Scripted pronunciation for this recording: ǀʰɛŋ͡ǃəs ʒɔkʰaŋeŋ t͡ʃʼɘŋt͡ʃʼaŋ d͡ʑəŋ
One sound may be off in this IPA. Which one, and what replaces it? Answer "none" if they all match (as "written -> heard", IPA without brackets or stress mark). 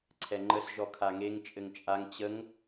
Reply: d͡ʑ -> t͡ɕ